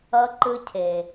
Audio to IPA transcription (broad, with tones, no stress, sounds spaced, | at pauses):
ʌ˦ ǃ ɯ˦ cʰ e˨